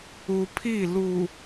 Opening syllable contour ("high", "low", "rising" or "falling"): low